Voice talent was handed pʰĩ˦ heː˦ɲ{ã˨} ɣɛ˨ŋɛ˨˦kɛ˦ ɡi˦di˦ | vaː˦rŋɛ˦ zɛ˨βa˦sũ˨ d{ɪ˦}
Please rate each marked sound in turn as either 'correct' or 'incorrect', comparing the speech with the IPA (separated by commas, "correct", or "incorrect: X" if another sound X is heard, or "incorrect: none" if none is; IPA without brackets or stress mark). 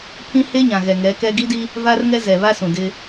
correct, correct